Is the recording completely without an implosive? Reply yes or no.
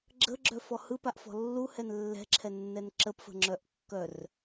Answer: yes